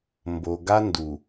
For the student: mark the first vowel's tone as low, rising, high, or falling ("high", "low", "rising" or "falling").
low